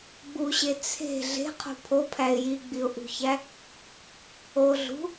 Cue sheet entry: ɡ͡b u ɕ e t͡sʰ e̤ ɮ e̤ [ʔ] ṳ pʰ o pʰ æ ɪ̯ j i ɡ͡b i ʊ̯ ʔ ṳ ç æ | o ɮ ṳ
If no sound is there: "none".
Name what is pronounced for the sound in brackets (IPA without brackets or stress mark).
qʰ